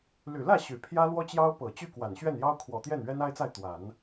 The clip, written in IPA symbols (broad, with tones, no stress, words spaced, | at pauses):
ly˨˩lä˥˩ ɕy˨˩pʰjä˥lwɔ˥t͡ɕjɑ˥ʊ̯ pɤ˨˩t͡ɕy˥˩kwa˨˩n ɕɥɛ˥˩njɑ˥ʊ̯kʰwɔ˨˩t̪jɛ˥˩n ɥɛ˥na˥ɪ̯t͡sa˥˩ɪ̯ t̪wa˨˩˦n